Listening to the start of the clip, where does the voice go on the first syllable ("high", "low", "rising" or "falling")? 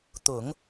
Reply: low